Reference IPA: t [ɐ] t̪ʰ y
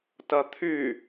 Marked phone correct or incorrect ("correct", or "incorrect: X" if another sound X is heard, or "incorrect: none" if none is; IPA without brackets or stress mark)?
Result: correct